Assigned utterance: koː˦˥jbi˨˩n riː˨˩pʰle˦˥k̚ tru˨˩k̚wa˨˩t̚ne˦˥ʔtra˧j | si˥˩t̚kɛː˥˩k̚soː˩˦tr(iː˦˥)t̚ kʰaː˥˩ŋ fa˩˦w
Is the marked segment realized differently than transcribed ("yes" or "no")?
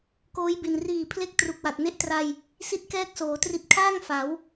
yes